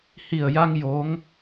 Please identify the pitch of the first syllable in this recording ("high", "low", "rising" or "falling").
low